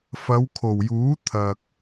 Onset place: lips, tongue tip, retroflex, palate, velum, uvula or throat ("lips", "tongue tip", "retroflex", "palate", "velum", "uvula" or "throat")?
lips